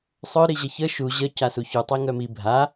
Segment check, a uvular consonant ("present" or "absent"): absent